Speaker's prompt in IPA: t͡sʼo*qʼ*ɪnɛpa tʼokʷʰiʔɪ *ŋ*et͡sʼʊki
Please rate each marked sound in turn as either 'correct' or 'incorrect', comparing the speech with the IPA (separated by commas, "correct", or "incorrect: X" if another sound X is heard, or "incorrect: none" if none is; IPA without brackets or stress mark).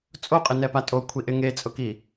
correct, correct